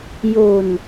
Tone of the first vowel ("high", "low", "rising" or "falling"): low